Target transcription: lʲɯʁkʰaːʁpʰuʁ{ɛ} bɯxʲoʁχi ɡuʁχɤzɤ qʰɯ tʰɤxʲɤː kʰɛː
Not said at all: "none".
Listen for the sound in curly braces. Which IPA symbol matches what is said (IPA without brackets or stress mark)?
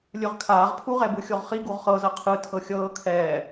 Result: ɛ